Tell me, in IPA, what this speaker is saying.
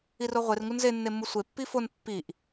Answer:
i r o ʁʷ e r ŋ u n z e nː e mː u sʷ e pː i f o n pː i ʔ

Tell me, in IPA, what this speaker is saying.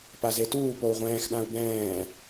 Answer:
p a z e t uː p o u̯ ʁʷ ɛ̃ː x ɗ ã u̯ b ɛ̃ː

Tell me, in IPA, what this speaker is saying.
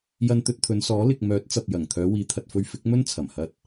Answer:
j ɐ˧ n t̪ ɵ˧ t̚ t̪ʰ ɵ˨˧ n s ɔː˨˥ l ɪ˨ k̚ m œː˨˥ t̚ t͡s ɐ˨ p̚ j ɐ˨˩ ŋ t̪ʰ œː˨˧ w iː˨˧ t̪ʰ ɐ˨ t̚ f ɵ˧ ɥ f ɪ˨˥ k̚ m ɵ˥ n t͡sʰ ɐ˨˩ m h ɐ˧ t̚

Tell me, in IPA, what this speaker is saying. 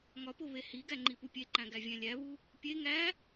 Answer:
ŋ ɒ p o β e h i ɡ æ ŋ͡ǃ i p u pʲ e ǃ æ̃ ɡ æ vʲ æ̃ lʲ æ β u | pʲ e ŋ æ

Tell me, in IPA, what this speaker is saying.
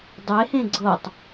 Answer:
dˤ e h ẽ ɡ͡ǀ ɤ tˤ

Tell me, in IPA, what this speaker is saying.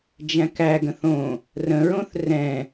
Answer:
d͡ʒ æ̃ k æ ɡ ə̃ θ õ | r ə̃ ɹ õ θ r ɛ̃

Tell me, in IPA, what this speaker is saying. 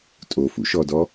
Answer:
tʼ o f ṵ ʃ ɔ d ɔ

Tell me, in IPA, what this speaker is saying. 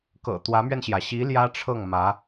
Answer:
k ɤ̰˨˩ t̪ w ä˧˥ m ɥ ɛ˧ n ɕ j ä˩ ɕ i˧˥ l j ä˥ ʈ͡ʂʰ ɤ˥˩ ŋ m ä˧˥

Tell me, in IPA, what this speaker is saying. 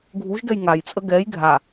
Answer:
ɡʱ u ʒ ɡ ɛ j ŋ a j t͡sʼ ə ɡ ɛ j ɡʱ a

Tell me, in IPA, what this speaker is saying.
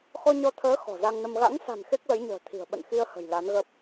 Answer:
x ɔ˧ ɲ ɔ˧ t̪ʰ əː˨˦ x ɔ̤˨˩ z a˧ ŋ n ə˧ m ɣ a̰˧˥ ŋ s a̤˨˩ n x e˦˥ k̚ l ə˨˦ j ɲ ə̤ː˨˩ t̪ʰ i̤˨˩ ə̯ ɓ ə̰˧˨ n x i˧ ə̯ h ə̤˨˩ j l a˨˦ n ɣ ə˦˥ p̚

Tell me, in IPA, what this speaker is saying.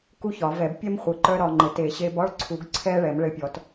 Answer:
k u˥ ç ɒ˨˩˦ v ɛ˨˩˦ b pʲ ɛ˥ m χʷ ə˨˩˦ ǃ œ˥ ɾ ɒ˧ ŋ͡ǃ ɘ˨˩˦ t e˨˩˦ ɕ e˧ b ɒ˥ ɭ ǀʰ u˨˩˦ ɡ ǀʰ ɛ˥ ɭ ɛ˨˩˦ m ɭ ɘ˧ pʲ ɔ˨˩˦ t

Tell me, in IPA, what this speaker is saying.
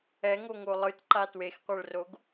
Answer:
ɛ ŋ o ŋ o lˠ ɯ t ǃ a t w e x qʷ ɛ ɭ r o ɡ

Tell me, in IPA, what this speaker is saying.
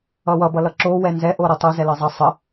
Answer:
ʌ w ʌ b ʌ l ʌ ǁ o w ɛ n z ɛ ʔ o ɾ ʌ tˤ o z ɛ l ʌ zˤ ʌ sˤ ə

